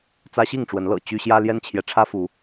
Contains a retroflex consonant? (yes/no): yes